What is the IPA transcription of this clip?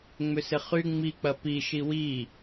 ŋ͡m ʏ s ɪ χ y ŋ͡m i k͡p ɐ p i ʃ i w i

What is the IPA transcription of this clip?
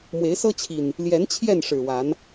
m w e˨˦ ɪ̯ s ɤ˦ t͡ɕʰ i˨˩ n | l j ɛ˨˦ n t͡ɕʰ j ɛ˥˨ n ʂ ɻ̩˨˩ w a˨˦ n

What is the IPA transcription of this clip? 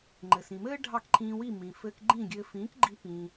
ŋ͡ǃ ɘː˩ s ĩ˩ m ɘː˥ ɖʱ ɑ˥˩ k ǃʰ ĩː˧ w i˥˩ m ĩ˩ f ɘː˧ k ɡ͡ǃ ĩ˥˩ ɡʲ ɘː˧ f ĩː˩˥ k ɡ͡ǃ i˧ p ĩː˩

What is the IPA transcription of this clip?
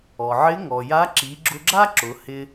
ɔ˩ ʕ ɪ˧˥ ŋ ɔ˩ j a˧˥ ǁ i˩˧ ɡ͡ǁ ʊ˧ ɡ͡ǁ a˥ ǁ ʊ˩˧ h ɪ˧

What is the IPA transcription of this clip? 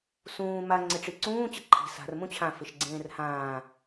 s ũː m a ŋ͡ǀ ɪ ʈ͡ʂ i ǀ ũː t͡ɕ ɪ ǃʰ i̤ s a̤ r m ũ t͡ɕʰ ã f ɪ ʃ ɡ͡ǀ ẽː r h ãː

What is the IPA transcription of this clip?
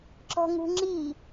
ǁ ɔ̤ ŋ ṳ ŋ͡ǁ i

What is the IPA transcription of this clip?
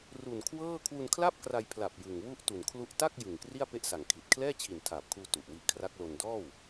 r u˨˩ n kʰ w ɤː˥˩ kʰ w u˧ n kʰ l a˥˩ p̚ k r a˧ j pʰ l a˨˩ p̚ j ɯ˨˩ ŋ w u˥˩ ʔ t u˨˩ n kʰ l u˦˥ ʔ t a˥˩ k̚ j ɯ˨˩ ŋ k r i˥˩ a̯ p e˥˩ ʔ s a˨˩ ŋ kʰ i˨˩ t̚ kʰ l ɛː˥˩ t͡ɕʰ i˨˩ n tʰ aː˨˩ p̚ kʰ uː˧ t u˨˩ ʔ w i˦˥ ʔ kʰ r a˦˥ k̚ l o˧ n d ɔː˥˩ w

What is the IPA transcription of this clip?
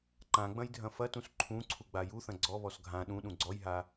ǃ ã ɡ͡b ɐ̃ j dʱ ɐ̃ f ɐ t ũ s ǃʰ ũ ǀʰ u ɡ͡b a j u θ ɐ̃ ɡ͡ǀ ɔ β ɔ s ɡʱ ã ɗ ũ ɗ ũ ɡ͡ǀ ɔ j ɦ a

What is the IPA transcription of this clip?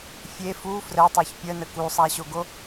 fʲ e f u f r ə tˤ o ç pʲ ə n ə k u sˤ a ɕ o ɡ o

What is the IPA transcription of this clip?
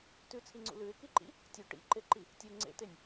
t ʉ t͡sʰ i ŋ͡ǀ ṵ l ʉ ɪ̯ k i ǃ ḭ | tʲ u ʈ ḭ ǃ e ǃ i | tʲ u ŋ͡ǀ ḛ t e nʲ

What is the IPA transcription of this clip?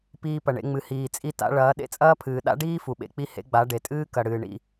p iː˧ p ɐ˨ ɳ ḛ˧ ŋ͡m ɨ˨ h iː˨ t͡sʼ i˧ t a̰˧ ɭ ɐː˨˦ ɗ ḛ˦ t͡sʼ ɐː˦ pʰ ɨː˨ ɗ a̰˦ ɖ iː˦ f u˨ ɓ ḛ˧ k͡p i˦ h ḛ˦ ɡ͡b a˨˦ ɖ e˨ tʼ ɨː˦ k ɐ˨ ɽ ɨː˨ ɳ ḭ˦˨

